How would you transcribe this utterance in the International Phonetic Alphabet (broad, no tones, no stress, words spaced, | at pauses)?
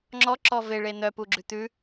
ŋ͡ǁɔǁɔ veɭe n̪œpuɡ͡ǁʉ t̪ʉ